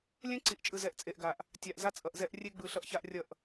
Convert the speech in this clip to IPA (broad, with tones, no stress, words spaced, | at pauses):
lʲɛ̃˦ǀi˨ʔt͡ʃʼɯ˨zɛ˨˦ʔ t͡sʼe˨ʔɡa˨ʔ | tʲa˨ʔza˦t͡sʼʌ˨ʔzɛ˦ʔ rʲe˦ɡ͡bɯ˨ ɬʌ˦ʔça˦ʔrʲʌ˦˨ʔ